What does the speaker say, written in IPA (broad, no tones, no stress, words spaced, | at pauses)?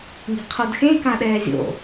ŋi̤qʰodxẽ kãɗɛːzʲo̰